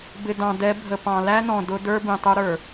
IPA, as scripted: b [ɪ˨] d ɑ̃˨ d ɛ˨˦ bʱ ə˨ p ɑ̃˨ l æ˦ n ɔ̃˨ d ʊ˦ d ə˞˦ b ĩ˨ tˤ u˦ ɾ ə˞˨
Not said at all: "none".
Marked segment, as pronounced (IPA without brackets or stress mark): ɪ˨